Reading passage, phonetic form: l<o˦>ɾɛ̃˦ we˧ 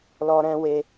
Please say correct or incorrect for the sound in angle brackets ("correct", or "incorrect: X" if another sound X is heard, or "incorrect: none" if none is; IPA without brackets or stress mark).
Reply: incorrect: ɔ˦